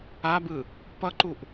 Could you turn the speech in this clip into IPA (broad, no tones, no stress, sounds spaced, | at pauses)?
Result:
a b ɯ | p ʌ ǃ u ʔ